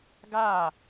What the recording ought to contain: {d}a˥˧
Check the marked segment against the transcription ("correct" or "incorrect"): incorrect